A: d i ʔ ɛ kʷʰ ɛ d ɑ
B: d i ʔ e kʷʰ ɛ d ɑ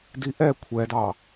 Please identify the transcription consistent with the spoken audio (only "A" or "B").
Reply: A